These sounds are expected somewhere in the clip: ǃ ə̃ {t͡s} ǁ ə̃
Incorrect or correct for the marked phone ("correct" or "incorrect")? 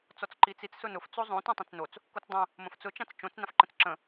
correct